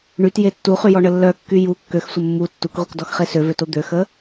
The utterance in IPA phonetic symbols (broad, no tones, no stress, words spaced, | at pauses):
ɳytje tːuχyjɔɳə lːœkːy ju kːøxsʷə mːu tːukʁʷikdɔxχe søvøto d̪øxə